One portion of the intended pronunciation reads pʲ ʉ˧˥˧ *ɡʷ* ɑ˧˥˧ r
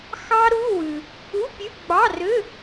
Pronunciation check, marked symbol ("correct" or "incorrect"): incorrect